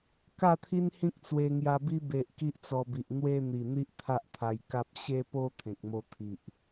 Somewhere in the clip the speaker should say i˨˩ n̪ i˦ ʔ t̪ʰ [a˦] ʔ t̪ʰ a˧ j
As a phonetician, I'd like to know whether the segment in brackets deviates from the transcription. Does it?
no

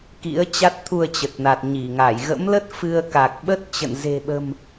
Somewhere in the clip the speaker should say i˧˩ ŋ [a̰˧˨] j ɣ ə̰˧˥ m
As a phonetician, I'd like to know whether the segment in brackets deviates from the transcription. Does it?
yes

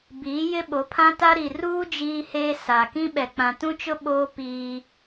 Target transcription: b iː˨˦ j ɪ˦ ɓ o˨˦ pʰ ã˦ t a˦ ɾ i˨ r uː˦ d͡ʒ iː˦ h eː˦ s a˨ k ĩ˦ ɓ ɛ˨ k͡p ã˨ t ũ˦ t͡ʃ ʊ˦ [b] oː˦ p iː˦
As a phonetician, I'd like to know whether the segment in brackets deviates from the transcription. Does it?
yes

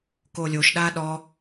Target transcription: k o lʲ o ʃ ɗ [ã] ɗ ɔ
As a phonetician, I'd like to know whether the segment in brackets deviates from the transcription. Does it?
yes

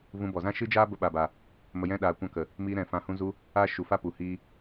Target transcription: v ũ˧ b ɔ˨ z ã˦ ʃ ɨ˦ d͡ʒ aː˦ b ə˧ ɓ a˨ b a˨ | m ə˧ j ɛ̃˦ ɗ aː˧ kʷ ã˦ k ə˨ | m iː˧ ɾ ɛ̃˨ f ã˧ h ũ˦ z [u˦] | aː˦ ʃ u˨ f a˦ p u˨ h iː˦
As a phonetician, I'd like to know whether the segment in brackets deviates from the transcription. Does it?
no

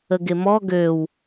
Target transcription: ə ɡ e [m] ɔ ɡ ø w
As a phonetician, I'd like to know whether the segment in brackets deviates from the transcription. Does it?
no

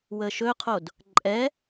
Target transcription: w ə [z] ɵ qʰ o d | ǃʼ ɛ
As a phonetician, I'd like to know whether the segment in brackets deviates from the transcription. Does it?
yes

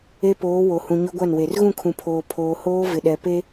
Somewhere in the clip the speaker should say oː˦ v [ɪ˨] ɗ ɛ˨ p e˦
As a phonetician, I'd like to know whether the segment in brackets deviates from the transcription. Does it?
no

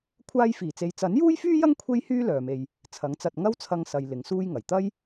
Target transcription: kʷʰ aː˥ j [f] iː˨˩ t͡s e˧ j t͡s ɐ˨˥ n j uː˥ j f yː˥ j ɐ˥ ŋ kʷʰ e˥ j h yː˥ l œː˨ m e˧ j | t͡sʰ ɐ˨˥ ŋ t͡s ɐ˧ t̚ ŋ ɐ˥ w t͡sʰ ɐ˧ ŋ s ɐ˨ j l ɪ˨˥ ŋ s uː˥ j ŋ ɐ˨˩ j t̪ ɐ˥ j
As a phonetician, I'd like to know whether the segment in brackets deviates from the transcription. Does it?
no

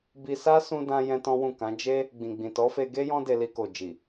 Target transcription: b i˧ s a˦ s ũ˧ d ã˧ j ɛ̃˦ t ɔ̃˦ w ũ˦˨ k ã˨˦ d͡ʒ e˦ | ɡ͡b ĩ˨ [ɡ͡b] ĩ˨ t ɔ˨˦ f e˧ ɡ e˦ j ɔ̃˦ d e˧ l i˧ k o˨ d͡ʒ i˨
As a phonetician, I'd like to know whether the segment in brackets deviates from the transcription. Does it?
no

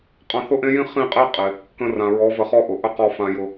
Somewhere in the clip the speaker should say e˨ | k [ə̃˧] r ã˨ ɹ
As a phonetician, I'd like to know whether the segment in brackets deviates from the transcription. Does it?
no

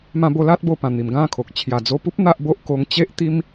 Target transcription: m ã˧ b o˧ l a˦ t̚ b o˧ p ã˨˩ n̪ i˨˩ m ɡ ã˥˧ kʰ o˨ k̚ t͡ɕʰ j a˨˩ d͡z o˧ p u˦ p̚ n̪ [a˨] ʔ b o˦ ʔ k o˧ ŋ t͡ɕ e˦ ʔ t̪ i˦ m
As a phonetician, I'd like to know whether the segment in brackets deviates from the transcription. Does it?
yes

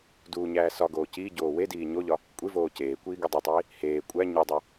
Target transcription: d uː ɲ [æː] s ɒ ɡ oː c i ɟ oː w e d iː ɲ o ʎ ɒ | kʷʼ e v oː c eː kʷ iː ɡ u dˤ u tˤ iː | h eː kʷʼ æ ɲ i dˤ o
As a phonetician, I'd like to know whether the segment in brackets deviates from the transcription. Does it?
no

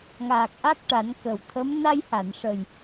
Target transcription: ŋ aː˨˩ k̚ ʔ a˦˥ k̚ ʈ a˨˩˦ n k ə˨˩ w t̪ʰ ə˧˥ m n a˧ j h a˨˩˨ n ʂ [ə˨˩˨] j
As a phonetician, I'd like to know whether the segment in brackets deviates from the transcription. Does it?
yes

